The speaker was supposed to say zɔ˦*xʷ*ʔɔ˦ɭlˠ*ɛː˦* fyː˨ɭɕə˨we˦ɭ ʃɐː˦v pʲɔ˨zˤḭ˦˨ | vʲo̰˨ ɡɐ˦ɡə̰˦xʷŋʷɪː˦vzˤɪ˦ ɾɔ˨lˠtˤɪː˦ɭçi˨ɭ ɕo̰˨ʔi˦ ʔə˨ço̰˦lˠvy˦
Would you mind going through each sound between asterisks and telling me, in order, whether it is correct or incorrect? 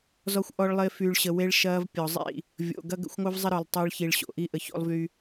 correct, incorrect: ɪː˦

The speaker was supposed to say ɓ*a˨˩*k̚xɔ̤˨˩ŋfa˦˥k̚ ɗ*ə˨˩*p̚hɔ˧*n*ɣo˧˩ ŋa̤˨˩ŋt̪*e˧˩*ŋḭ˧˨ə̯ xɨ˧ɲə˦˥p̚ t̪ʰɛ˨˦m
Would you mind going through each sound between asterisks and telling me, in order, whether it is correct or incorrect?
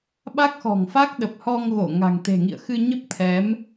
incorrect: a˦˥, correct, incorrect: ŋ, incorrect: e̤˨˩

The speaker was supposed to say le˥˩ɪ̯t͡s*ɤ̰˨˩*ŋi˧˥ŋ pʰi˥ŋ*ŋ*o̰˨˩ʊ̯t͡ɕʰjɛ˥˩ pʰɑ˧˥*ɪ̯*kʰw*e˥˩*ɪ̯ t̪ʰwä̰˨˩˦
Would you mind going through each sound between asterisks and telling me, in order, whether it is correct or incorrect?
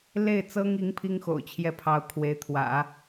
incorrect: ɤ˥, incorrect: x, incorrect: ʊ̯, incorrect: e˧˥

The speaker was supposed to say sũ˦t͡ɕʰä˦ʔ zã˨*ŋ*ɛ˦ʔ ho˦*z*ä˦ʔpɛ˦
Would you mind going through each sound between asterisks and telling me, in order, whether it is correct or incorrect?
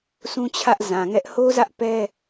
correct, correct

